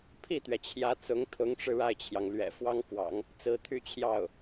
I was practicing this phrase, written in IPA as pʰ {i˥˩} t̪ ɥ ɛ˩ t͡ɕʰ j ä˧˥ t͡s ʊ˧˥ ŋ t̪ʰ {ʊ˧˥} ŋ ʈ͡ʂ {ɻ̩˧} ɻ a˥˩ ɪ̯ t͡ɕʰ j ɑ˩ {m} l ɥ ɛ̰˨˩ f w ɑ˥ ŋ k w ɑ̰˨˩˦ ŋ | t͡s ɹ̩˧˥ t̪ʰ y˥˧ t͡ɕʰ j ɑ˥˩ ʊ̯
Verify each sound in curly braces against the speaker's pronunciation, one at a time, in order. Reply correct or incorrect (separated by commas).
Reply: correct, correct, correct, incorrect